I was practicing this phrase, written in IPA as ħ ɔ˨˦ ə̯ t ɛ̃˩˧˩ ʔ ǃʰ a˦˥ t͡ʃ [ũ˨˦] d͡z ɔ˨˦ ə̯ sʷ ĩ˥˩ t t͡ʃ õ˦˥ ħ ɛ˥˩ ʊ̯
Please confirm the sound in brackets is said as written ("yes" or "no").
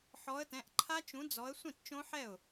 yes